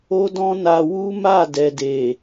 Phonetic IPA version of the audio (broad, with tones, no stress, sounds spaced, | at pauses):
o˦ d ɔ̃˦ n a˧ w u˦ m a˦˨ d ɛ˨ d e˨